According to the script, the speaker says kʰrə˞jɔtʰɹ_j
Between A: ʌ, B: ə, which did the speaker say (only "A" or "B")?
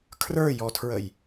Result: B